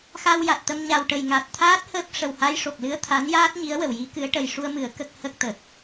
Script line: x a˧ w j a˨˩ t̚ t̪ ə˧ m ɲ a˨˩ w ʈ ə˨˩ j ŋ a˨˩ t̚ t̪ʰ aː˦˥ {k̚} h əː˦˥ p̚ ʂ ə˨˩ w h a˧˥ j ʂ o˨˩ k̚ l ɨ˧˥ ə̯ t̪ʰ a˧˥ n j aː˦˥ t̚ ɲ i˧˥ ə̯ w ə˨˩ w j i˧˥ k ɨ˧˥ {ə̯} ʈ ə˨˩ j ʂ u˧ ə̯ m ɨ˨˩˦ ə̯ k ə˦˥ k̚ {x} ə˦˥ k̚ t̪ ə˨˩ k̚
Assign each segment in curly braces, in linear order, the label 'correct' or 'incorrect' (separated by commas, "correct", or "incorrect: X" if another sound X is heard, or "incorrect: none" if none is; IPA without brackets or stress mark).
incorrect: t̚, correct, incorrect: h